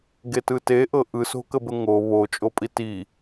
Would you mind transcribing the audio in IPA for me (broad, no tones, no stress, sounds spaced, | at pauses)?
ɡ e t ɯ t e ʔ ɤ ʔ ɯ s o̤ k ə b ə ŋ o β o t͡ʃʼ o pʼ i t i